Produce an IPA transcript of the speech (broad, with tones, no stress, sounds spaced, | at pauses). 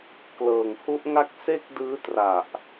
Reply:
k l ɤː˨˩ ŋ h u˦˥ ʔ ŋ a˥˩ k̚ s e˥˩ k̚ d ɯː˦˥ t r a˨˩ ʔ